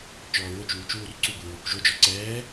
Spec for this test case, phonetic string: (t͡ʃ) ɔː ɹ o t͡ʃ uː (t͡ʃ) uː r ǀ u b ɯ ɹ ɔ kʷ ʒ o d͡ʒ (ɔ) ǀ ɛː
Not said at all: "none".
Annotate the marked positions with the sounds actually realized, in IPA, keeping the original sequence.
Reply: t͡ʃ, t͡ʃ, ɔ

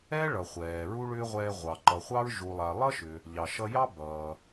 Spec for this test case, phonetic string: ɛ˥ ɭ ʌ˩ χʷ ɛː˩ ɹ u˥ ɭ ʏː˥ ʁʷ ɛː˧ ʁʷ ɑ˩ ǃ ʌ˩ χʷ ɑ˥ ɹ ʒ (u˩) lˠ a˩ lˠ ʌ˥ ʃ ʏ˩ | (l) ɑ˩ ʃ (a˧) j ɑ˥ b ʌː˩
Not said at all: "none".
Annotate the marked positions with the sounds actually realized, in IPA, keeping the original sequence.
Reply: u˩, ʎ, ʌ˧

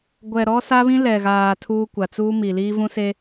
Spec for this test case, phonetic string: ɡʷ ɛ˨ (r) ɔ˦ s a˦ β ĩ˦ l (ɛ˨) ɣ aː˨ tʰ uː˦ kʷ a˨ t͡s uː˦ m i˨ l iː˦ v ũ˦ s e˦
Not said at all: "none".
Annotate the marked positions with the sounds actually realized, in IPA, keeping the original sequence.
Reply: ɾ, ɛ˨

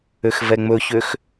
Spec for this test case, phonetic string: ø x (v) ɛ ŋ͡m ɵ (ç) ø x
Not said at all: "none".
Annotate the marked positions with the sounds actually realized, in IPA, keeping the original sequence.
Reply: v, ç

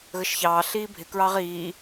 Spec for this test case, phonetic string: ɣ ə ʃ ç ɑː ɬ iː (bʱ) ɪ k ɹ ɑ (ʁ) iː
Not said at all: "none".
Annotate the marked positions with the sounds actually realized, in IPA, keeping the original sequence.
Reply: bʱ, ʁ

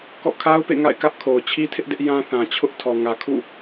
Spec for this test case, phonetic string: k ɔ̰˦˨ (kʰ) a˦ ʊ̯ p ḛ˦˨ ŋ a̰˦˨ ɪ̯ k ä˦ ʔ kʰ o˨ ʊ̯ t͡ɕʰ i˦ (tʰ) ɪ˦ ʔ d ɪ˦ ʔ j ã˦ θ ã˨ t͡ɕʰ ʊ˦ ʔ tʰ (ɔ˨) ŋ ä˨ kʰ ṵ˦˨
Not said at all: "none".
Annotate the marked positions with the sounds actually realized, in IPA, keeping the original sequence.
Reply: kʰ, tʰ, ɔ˨

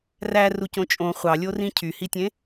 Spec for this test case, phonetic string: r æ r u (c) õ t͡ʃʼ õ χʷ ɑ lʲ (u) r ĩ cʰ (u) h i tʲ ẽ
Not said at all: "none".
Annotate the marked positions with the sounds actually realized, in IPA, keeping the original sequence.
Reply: c, o, y

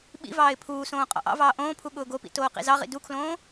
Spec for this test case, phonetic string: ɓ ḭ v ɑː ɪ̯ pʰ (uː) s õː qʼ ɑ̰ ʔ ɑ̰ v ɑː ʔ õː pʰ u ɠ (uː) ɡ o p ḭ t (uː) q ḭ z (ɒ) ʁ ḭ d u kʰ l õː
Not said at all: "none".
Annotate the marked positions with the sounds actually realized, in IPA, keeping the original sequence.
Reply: uː, ʊː, oː, ɑ

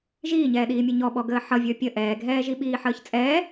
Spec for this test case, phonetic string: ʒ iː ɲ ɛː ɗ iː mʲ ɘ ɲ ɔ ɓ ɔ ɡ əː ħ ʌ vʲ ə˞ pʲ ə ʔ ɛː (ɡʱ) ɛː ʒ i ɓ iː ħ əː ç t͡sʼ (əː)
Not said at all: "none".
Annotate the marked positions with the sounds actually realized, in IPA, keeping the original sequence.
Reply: ɡʱ, ɛː

